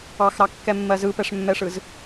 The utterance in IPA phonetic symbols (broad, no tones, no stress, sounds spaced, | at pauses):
ɑ x ɾ ɑ kː ɛ mː ɜ z ɯ p ɛ ʂ mː ɛ ʂ ɯ z